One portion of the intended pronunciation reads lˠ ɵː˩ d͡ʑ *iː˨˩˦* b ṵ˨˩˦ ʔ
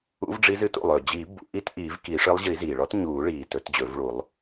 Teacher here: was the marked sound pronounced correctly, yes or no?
yes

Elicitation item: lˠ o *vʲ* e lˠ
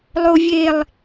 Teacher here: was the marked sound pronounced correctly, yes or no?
yes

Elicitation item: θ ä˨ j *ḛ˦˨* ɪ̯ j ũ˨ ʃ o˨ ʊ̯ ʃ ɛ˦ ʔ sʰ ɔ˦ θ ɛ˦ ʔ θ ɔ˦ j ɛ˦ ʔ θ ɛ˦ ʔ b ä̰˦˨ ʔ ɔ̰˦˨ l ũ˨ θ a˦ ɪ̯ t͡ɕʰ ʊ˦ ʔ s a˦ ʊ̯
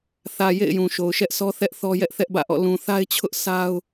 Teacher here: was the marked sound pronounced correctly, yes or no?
yes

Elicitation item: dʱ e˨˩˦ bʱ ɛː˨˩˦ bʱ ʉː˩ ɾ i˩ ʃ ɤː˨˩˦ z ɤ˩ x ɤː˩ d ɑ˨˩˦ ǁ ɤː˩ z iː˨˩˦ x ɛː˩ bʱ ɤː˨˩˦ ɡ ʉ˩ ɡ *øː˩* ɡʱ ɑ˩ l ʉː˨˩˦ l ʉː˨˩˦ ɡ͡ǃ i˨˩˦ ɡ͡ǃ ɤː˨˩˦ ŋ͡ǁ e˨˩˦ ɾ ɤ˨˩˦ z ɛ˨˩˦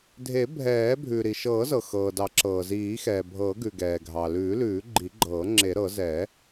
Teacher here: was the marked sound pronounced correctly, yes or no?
no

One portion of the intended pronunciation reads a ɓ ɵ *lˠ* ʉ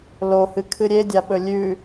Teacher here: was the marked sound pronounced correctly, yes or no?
no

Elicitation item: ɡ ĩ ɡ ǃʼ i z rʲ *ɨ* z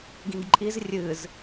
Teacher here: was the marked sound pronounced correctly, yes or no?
yes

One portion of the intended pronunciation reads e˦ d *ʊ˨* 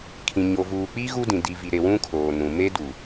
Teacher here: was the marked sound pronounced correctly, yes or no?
no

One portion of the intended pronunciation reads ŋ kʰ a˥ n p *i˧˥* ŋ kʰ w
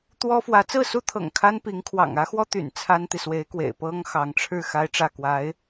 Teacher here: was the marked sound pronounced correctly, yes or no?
yes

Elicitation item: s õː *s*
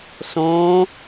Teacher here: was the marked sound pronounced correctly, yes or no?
no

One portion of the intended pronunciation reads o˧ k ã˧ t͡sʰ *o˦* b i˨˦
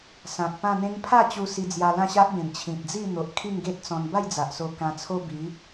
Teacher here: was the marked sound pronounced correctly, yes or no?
yes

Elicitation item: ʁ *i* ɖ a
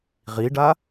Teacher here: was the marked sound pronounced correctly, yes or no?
yes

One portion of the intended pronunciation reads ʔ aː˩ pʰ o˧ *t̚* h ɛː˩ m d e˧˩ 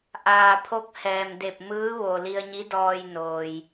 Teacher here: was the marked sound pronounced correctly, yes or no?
no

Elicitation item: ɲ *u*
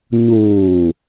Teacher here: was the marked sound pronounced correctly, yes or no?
no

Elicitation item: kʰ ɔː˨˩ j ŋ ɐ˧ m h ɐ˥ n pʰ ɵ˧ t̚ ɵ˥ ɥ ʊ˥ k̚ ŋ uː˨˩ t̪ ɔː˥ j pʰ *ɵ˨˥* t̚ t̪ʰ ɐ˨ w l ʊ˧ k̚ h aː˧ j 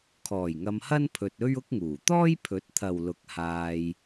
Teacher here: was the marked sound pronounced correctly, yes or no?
yes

